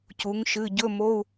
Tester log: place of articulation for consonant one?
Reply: palatal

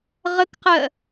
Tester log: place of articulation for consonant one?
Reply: uvular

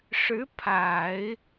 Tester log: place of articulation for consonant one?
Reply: retroflex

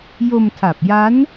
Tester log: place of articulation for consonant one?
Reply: palatal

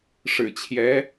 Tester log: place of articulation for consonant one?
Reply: retroflex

